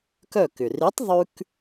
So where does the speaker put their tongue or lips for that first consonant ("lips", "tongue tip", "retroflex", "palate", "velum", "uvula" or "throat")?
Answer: velum